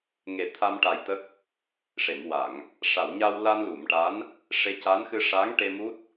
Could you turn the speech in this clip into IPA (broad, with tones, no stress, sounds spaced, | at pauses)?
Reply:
ŋ e˨˩˦ t̪ʰ a˧ m ʈ a˨˩ j t̪ ə˦˥ k̚ | ʂ e˨˩˨ m w a˨˩˨ ŋ | ʂ a˨˩˨ w ɲ a˧ w l a˧ n l u˨˩˨ m ʈ a˧˥ n | ʂ e˧˥ c a˧˥ n x ɨ˧ ʂ a˧˥ ŋ ʈ e˧ m u˦˥ t̚